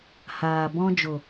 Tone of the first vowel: low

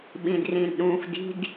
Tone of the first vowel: low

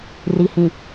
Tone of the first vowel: low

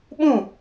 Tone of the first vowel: falling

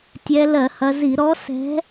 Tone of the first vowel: rising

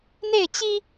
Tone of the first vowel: falling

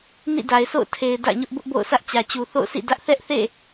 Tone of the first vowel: falling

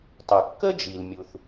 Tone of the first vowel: low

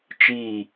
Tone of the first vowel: falling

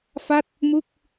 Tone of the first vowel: falling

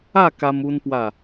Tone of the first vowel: falling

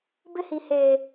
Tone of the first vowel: high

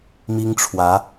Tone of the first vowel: high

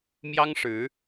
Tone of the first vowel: high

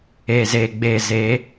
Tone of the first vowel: low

